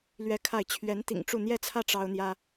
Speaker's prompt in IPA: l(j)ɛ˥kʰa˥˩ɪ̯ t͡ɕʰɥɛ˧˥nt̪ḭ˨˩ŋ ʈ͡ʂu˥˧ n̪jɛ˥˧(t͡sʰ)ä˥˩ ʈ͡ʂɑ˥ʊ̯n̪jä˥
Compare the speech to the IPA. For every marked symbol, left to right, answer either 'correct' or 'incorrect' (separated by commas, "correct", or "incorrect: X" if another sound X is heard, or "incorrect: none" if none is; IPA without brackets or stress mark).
incorrect: ɥ, correct